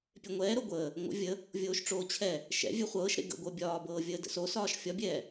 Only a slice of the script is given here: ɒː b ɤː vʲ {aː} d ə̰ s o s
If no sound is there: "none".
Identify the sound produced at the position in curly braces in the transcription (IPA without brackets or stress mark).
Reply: əː